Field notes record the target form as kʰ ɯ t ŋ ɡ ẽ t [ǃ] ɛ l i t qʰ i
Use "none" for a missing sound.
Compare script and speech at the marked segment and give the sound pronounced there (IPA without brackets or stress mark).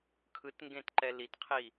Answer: ǃ